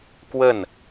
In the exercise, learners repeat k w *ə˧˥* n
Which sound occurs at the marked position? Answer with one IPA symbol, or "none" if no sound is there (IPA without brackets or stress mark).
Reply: ə˥˩